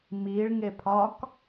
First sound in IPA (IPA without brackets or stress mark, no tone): m